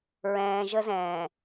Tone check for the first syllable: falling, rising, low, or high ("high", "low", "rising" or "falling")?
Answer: low